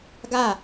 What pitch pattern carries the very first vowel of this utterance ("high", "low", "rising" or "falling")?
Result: falling